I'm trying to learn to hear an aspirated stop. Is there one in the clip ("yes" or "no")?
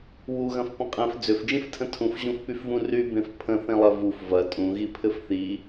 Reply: yes